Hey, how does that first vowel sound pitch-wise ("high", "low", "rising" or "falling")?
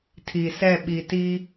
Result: low